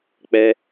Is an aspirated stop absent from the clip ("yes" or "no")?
yes